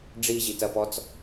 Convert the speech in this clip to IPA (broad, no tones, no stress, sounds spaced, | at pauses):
ɖ͡ʐ i ʑ i t ɐ p ɔ t͡s